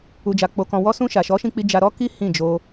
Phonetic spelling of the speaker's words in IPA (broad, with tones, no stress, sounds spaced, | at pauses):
u˧ d͡ʒ a˧ k͡p o˧ k ɔ̃˧ w ɔ˧ s ũ˧ ʃ a˨ ʃ ɔ˨˦ ʃ ĩ˧ k͡p i˧ d͡ʒ a˧ ɾ ɔ˦ k i˦ h ĩ˦˨ d͡ʒ o˧